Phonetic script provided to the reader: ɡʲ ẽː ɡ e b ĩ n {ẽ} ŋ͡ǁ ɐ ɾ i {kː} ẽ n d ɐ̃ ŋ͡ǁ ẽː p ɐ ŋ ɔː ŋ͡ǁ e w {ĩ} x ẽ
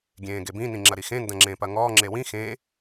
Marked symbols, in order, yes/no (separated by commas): no, no, yes